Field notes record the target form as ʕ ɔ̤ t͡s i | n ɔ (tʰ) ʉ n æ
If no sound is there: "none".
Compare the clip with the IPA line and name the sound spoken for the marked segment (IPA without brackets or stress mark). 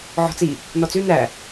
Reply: t͡s